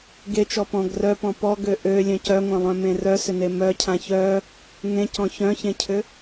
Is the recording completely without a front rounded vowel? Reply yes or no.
no